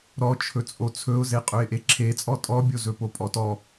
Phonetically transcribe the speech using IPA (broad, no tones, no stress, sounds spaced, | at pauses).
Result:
ɾ ɔ t͡ʃʰ ɵ t͡sʼ o t͡sʰ ɵ ʊ̯ z e qʼ ɵ ɪ̯ ʔ e ǁʰ e t͡sʼ ɔ tʼ ɔ bʲ o z ɵ p o pʼ ɔ t ɔ